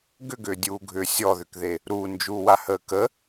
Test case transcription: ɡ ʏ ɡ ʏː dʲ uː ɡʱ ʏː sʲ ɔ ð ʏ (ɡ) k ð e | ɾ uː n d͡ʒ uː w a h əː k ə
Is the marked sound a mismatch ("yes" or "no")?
yes